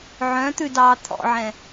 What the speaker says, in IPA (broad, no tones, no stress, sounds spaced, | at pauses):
ʕ œ̃ t̪ ʉ d ɑː t̪ʰ ɔ̰ ʕ ɛ̃